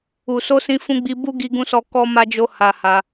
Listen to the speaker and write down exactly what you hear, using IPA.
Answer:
u˨so˧ sĩ˧fũ˧ɡ͡bi˧ bu˦ ɡi˦ɡũ˦sɔ˦ kɔ˦ma˦d͡ʒo˦ ha˧ ha˧

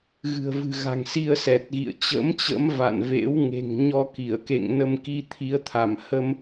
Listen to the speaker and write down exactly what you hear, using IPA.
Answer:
ɣɨ̤˨˩ə̯vɨ̤˨˩ɣa̤˨˩ŋ si˧ə̯ sɛ˨˩t̚ɣḭ˧˨ə̯t͡ɕə̰˧˥mt͡ɕə̰˧˥m va̰˧˨nvḛ˧˥w ŋe̤˨˩ŋɲɔ˧ki˧˩ə̯kḛ˧˨ŋ nə˧mki˧ t̪ʰi˨˦ə̯t̪ʰa˧˩mhə˧m

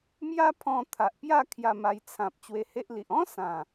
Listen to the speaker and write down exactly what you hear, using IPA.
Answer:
mja˦pʰɔ̃˧t̪ʰa˨ʔpja˥˧ kʰja˧ma˧jt͡sʰã˨p̚ t͡ɕwe˧he˦ʔli˨ʔ ɔ̃˦ sã˨˩

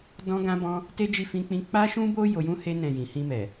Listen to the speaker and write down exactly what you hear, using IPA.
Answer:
dɔ̃˦ɡã˦bɔ̃˦ | te˦d͡ʒi˦˨ fĩ˧k͡pĩ˧ k͡pa˦ʃũ˦bo˦ jo˧jũ˦he˦ nɛ̃˦˨jĩ˨ hĩ˧mɛ˨

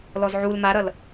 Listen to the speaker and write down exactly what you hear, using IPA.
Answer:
lɔzʕul maɾʌl

